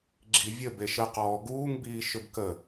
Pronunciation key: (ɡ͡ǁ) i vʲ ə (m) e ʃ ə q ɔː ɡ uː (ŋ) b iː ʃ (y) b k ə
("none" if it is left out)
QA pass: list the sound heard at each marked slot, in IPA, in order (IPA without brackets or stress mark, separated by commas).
ɡ͡ǁ, b, ŋ, ʏ